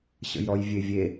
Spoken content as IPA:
ɕ ə̰ j ɾ ɔ j vʲ e vʲ e

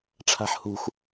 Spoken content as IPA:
ʈ͡ʂʰ a̤ ħ h ṳ x

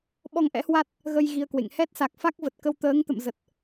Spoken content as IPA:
ɓ ɔ˧ ŋ ʔ ɛ̰˧˥ h w a˦˥ t̚ | ɣ ə˧ j ɣ i˧ ə̯ k w ḛ˧˨ ŋ h ɛ˦˥ t̚ s a˨˩ k̚ f a˦˥ k̚ v ə˨˩ t̚ k ə˧ w t̪ əː˨˦ ŋ t̪ ə̰˧˨ m z ə˨˩ t̚

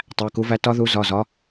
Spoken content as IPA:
tˤ æ˩˧˩ k u˨˦ v æ˨˦ t ɒ˦˥ ð u˨˦ z ɒ˩˧˩ z ɒ˨˦

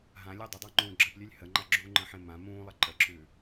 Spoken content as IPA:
ɦ ã lʲ ɔ dˤ ə dˤ ɑ ŋ͡ǃ ũː ɡ͡ǁ ə p lʲ ʉ lʲ h ə ŋ͡ǃ a ɡ͡ǁ u ŋ͡ǃ ə̃ ħ ẽ m ã m ũː lˠ ə ǃ ə ǁ ʉː

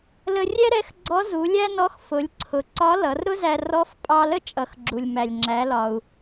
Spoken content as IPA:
l ə˧ rʲ ɛ˥ ɾ ɛ˧˥ x ɡ͡ǀ ɔ˧˥ z u˩˧ lʲ æ˥ n ɔ˧˥ x f ʊ˩˧ lʲ ǀʰ ʊ˩ ǀ ɒ˧˥ l ʌ˩˧ r ɾ ʊ˥ z æ˧ r ɔ˧˥ f pʼ ɑ˧ l ə˥ t͡ʃʼ ʌ˩˧ x ɡ͡ǁ u˩ lʲ m æ˩ lʲ ŋ͡ǁ æ˩˧ l ɒ˩ u̯

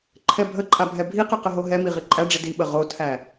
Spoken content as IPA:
ǃʰ ɛ bʱ ə ǃʼ a bʱ ɛ bʱ i q ə q ə ɦ o ɦ ɛ m i ʁ i ǃʼ æ ɖ͡ʐ i d i ɓ ə ʁ o tʰ æ

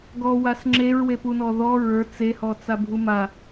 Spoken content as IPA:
ɡ ɔ w a s ŋ͡ǁ e ɹ w e p u n ɔ ð ɔ ɹ ə˞ t͡s e h ɔ t͡s a bʱ u m a

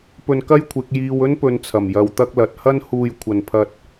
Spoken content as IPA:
p ɵ˧ n k ɐ˥ j kʷʰ ɪ˨˥ k̚ j iː˧ w ɵ˥ n p ɵ˨˧ n t͡sʰ ɐ˨˩ m j ɐ˧ w t̪ ɐ˥ k̚ l ɐ˨˥ t̚ h ɐ˥ n h uː˧ j kʷʰ ɐ˨ n pʰ ɐ˧ t̚

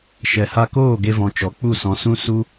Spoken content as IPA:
ʃ ɛ˨ h a˧ k oː˦˨ ɡ e˧ v ɔ̃˨ t͡ʃ ɔ˨˦ k͡p u˦˨ s ɔ̃˨ s ũ˧ s u˦

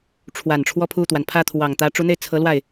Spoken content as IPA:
ʈ͡ʂʰ w a˨˩ n ʈ͡ʂʰ w ɔ˥˧ pʰ u˥˩ t̪ w a˩ n pʰ ä˥˩ t̪ʰ w ɑ˨˩ ŋ t̪ ä˧˥ ʈ͡ʂ u˧˥ n̪ e˥˩ ɪ̯ t͡sʰ ɤ˧˥ l w a˥˩ ɪ̯

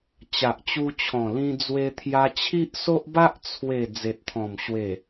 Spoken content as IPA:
t͡ɕ a˨ ʔ t͡ɕ u˧ t͡ɕʰ ɔ̃˨˩ l ĩ˧ d͡z w e˧ t̪ʰ j a˧ t͡ɕʰ i˦ ʔ s o˦ ʔ b a˦ ʔ t͡sʰ w e˨˩ d͡z e˨ t̚ t̪ʰ ɔ̃˨˩ m ɕ w e˨˩

